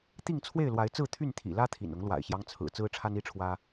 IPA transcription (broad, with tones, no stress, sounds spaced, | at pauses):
t̪ i˥˨ ŋ t͡sʰ w e˥˨ ɪ̯ l w a˨˦ ɪ̯ t͡s ɹ̩˥˨ t̪ʰ y˥˨ n t̪ʰ ḭ˨˩ l ä˦ t̪ʰ ḭ˨˩ n ʊ˨˦ ŋ l w a̰˨˩ ɪ̯ ɕ j ɑ˦ ŋ t͡sʰ ɹ̩˨˩ t͡s ɹ̩˦ ʈ͡ʂʰ a˦ n i˥˨ ʈ͡ʂʰ w ä˦